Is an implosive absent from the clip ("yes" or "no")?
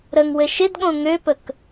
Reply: no